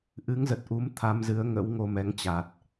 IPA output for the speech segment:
ʔ ɨ˨˦ ŋ z ə˨˩ t̚ ʔ u˨˦ m t̪ʰ a˧ m z ɨ˨˦ ə̯ ŋ ə̰˧˥ w ŋ o˧ m ɛ˨˦ ŋ t͡ɕ a˨˩ t̚

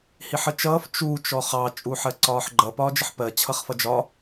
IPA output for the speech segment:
h i ħ ə t͡ʃ ʌː f t͡ʃ u t͡ʃ ɔ χ ɑ t͡ʃʼ u ħ ɜ ǀ ɒː ħ ɡ͡ǃ ʌ p ɒː d͡ʒ ə ħ p ɜ t͡ɕʰ ʌ χ f ʌ d͡ʒ ɒ

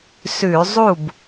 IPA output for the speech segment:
s ʉ˧˩˧ zˤ u˥˩ b

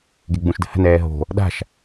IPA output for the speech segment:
ɡ e ɡ͡b ũ ʃ d ə̤ h ə̤ n ɛː ɦ o̤ | ɗ a̤ ʃ

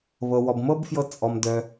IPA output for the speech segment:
β ɤ˩ w ɔ˩ b m ɤ˥ b f j ɤ˧ t͡sʼ ɔ˩ m d œ˩

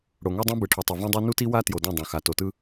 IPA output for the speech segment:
ɽ o˨ ŋ ɛ˦ dˤ õ˦ b ɯ˨ ʈʰ o˨ tˤ ɯ˨ v õ˦ dˤ ɛ˦ n u˦ t i˦ w a˦ t j o˨ d õ˦˨ dˤ õ˨ x a˨ t o˨ t ɯ˦

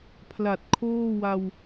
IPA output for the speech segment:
pʰ l a˨˩ t̚ kʰ oː˥˩ w a˧ w

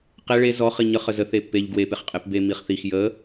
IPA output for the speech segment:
q e ɭ e z ɔ χ i ɲ ə χ ə z ə θ e pː e ʎ ɡ w e p e χ qʼ e p b e m i χ θ i x j ə

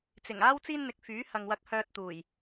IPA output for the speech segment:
t͡s ɪ˨˩ ŋ aː˥ w t͡s iː˥ n n̪ ɪ˨˥ k̚ f yː˨˥ h ɐ˨ ŋ w ɐ˨ k̚ h œː˨ t̚ t̪ uː˨˩ j

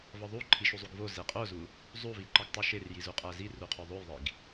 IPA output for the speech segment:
v ɒ ðˤ u ǃʰ i ʃ u zˤ u ɡ v o z e qʼ o z u | zˤ u v i ǃ ɒ ɡ tˤ u ʃ e r j i z u qʼ æ z i r u qʰ o ðˤ o j ðˤ i ɡ

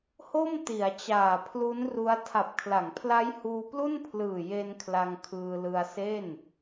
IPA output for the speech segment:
h o˥˩ m t i˩˦ a̯ t͡ɕ aː˨˩ pʰ l u˦˥ n r u˦˥ a̯ tʰ a˨˩ p̚ kʰ l a˩˦ ŋ pʰ l a˦˥ j h uː˧ p l u˥˩ n pʰ l ɯː˨˩ j e˧ n kʰ l a˧ ŋ kʰ ɯː˧ l ɯ˧ a̯ s e˥˩ n

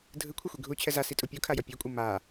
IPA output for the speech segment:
dʱ ɯ kʷʰ ɛ xʷ i ɡʱ u t͡ɕʰ ɛ z a s i tʼ u pʲ u kʰ a j ʌ pʲ e kʷʼ ɯ m a

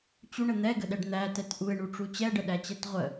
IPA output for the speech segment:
t͡ɕ u ɳ ə n̪ ɛ ɡ ə ɗ ɛ ɖ n̪ æ t ɛ t ʔ u ɪ̯ ɳ u ʈ͡ʂ u t͡ɕ ɛ ɖ ə ɗ æ t͡ɕ ɛ t ʁʷ ə

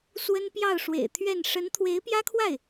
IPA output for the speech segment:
s w ə˥ n p j ɑ˥˩ ʊ̯ ʂ w ḛ˨˩ ɪ̯ t̪ʰ ɥ ɛ˥˩ n ʂ ə˧˥ n t̪ʰ w e˧˥ ɪ̯ p j ä˥ kʰ w a˥˩ ɪ̯

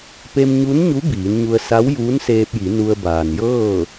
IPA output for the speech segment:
p e˧ m ɲ u˧˥ n ɲ u˧˥ b iː˩˧ n ɲ u˧ ə̯ s a˧˥ w j uː˧˥ n s eː˧ p̚ j i˩˧ n u˧ ə̯ b aː˩ n j ɤː˥˨

